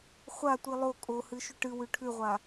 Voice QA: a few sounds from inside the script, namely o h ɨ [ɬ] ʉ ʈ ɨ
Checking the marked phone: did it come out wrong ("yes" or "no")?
yes